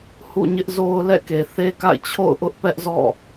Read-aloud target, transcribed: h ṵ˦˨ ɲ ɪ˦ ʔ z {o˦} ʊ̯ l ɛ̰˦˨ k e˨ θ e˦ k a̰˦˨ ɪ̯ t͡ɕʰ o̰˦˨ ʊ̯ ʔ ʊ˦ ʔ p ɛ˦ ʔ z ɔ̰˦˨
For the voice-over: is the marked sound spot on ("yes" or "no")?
yes